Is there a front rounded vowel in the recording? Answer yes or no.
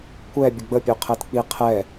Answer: yes